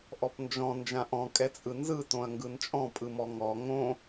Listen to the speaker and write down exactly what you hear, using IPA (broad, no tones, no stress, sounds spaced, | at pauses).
ʔ ɔ p n d͡ʒ ɔ̃ n d͡ʒ ã ʔ ɔ̃ kʼ ɛ t͡sʼ ɯ n z ɯ t õ ɐ̯ ŋ ɡ ɯ n t͡ʃʼ ɔ̃ pʼ ɯ m ɔ ŋ ɔ ŋ õ